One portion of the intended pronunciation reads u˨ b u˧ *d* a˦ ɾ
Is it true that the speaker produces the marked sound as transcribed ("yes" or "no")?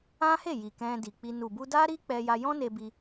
yes